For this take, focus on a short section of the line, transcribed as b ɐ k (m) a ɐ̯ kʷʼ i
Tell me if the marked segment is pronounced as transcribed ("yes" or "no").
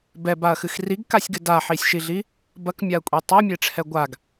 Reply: no